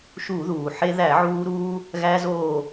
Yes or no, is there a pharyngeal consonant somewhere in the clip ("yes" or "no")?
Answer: yes